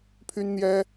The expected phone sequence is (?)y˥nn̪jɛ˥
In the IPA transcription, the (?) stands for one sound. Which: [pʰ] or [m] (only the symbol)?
pʰ